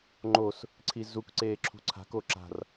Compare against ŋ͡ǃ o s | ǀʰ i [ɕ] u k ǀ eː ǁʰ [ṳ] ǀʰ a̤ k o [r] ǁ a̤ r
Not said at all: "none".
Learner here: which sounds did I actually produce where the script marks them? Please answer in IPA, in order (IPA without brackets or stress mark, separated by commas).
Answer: z, ṳ, none